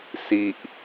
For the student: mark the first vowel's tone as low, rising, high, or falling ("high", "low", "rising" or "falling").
low